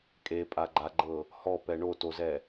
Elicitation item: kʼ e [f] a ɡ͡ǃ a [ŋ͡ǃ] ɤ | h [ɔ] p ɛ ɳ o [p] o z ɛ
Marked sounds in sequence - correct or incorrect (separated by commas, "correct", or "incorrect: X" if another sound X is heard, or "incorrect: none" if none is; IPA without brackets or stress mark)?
incorrect: pʼ, incorrect: ɡ͡ǃ, correct, incorrect: t